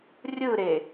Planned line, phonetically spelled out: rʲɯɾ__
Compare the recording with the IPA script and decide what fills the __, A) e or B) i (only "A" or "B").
A